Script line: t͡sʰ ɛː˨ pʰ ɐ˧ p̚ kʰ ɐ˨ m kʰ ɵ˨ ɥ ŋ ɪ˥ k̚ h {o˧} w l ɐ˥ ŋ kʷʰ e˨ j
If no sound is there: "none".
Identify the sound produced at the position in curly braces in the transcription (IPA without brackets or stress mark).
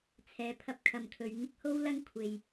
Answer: o˥